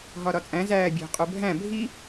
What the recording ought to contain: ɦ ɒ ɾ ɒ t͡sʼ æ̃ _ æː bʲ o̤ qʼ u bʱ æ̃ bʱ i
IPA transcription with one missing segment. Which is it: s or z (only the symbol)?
z